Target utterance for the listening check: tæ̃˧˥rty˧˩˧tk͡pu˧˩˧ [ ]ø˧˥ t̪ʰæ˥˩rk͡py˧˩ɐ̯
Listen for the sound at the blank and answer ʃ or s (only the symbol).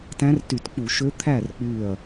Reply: ʃ